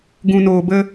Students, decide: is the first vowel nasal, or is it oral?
nasal